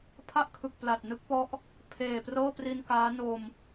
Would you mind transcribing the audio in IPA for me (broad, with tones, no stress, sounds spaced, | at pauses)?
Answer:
pʰ a˥˩ ʔ kʰ ɯ˨˩ k̚ p l a˨˩ t̚ n ɯ˥˩ k̚ p ɔ˦˥ ʔ | pʰ eː˨˩ p r ɤː˥˩ p r i˧ n k aː˦˥ n o˧ m